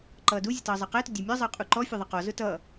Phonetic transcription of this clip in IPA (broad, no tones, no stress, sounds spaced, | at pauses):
ǃ ʌː d u zʲ ə t ʌː zˤ ɑ q æ t ʊ dʲ æ mʲ ə˞ zˤ ʌː qʼ u ǃ ɔ fʲ ʌ ðˤ ʌ q ɔ z ʊ t ʌː